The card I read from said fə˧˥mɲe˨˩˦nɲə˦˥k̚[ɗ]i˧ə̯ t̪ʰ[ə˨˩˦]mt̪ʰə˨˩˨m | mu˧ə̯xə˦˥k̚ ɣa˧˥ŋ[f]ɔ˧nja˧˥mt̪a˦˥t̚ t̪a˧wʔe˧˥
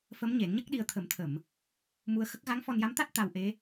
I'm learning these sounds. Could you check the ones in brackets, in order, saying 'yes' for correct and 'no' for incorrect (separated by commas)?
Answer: yes, yes, yes